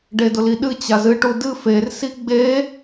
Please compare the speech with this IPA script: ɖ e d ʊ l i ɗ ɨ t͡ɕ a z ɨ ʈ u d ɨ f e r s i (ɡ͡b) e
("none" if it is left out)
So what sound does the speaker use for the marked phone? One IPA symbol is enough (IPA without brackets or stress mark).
ɡ͡b